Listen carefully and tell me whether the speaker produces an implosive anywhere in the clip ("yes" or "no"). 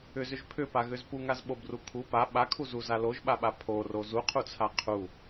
yes